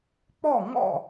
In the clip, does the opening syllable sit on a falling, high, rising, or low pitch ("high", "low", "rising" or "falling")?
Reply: falling